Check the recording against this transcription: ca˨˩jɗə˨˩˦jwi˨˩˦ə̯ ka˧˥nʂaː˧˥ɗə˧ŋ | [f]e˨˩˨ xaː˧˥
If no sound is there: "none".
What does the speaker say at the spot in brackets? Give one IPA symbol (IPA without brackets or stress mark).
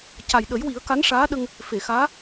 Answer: f